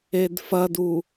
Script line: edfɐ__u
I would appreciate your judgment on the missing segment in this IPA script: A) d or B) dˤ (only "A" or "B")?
A